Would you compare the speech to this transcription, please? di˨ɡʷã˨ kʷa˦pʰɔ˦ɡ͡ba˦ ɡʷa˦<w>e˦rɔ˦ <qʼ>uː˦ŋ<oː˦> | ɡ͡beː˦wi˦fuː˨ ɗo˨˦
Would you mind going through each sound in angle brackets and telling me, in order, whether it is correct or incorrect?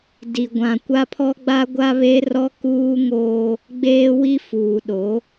incorrect: β, incorrect: k, correct

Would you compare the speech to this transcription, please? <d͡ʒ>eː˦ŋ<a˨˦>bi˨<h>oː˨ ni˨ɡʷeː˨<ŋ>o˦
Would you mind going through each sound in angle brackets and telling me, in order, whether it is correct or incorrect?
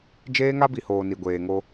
correct, incorrect: a˦, correct, correct

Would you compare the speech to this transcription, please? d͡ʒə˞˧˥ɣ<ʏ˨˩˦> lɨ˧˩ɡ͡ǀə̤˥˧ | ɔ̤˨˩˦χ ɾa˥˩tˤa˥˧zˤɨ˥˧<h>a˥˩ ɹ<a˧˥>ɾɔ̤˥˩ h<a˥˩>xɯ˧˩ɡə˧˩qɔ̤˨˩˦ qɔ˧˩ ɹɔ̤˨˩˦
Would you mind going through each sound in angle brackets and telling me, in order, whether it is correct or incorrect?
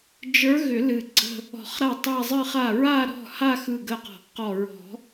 correct, incorrect: χ, incorrect: a˥˧, incorrect: a˥˧

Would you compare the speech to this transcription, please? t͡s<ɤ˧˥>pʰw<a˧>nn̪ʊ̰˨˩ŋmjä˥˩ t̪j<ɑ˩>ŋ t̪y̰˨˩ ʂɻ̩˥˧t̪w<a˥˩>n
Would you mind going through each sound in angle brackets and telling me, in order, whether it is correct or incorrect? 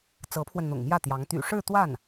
correct, incorrect: ə˧, incorrect: ɑ˧˥, correct

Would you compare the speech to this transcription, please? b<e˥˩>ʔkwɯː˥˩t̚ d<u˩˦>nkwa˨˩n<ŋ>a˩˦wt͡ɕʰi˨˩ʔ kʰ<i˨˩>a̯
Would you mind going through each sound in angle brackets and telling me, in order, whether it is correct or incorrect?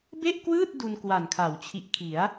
correct, incorrect: u˧, incorrect: kʰ, incorrect: i˩˦

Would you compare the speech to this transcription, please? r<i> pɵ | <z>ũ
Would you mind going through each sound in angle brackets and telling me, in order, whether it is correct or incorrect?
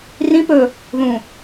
incorrect: ĩ, incorrect: ð

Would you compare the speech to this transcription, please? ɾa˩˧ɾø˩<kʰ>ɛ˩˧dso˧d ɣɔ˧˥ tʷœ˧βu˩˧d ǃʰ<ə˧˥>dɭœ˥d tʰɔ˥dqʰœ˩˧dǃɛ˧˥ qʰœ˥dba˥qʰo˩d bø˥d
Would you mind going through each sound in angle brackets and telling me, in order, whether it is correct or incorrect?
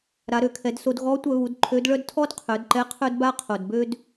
correct, incorrect: ø˧˥

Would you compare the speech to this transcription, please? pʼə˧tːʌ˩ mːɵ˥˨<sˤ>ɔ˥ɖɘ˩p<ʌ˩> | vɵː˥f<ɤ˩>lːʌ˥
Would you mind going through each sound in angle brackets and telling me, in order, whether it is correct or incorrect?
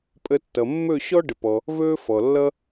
incorrect: ɕ, incorrect: ɔ˩, incorrect: ɔ˩

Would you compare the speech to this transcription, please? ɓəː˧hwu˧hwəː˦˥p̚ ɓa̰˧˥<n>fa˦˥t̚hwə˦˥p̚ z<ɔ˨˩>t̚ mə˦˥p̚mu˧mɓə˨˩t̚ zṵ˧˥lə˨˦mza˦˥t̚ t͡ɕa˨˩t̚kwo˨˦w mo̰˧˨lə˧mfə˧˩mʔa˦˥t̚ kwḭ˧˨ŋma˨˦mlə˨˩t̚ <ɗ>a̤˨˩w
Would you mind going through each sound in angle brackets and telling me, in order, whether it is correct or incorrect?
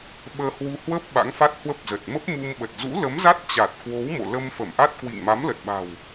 incorrect: ŋ, incorrect: ə˨˩, incorrect: ɓ

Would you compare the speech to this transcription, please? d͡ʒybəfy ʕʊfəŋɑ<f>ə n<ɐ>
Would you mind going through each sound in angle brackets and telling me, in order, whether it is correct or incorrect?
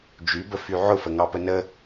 incorrect: p, incorrect: ə

